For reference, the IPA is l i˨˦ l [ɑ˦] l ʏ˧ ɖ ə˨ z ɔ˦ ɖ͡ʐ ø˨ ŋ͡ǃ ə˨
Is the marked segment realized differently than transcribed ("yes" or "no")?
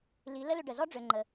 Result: yes